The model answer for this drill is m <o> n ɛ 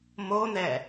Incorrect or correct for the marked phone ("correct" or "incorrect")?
correct